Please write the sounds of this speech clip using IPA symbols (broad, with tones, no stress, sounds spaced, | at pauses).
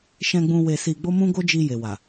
ʃ ɛ̃˧ ɡ͡b ũ˧ w e˧ s i˧ ɡ͡b o˦ m ũ˦ ɡ o˦ d͡ʒ i˧ j e˨ w a˨